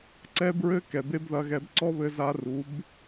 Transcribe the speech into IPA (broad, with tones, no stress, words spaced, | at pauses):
ǀɛ˦bɹɘ˦ kɛ˨be˦bðɐ˧ɣɛ˧b ǀɔ˦βɘ˧za˧ ru˨˦b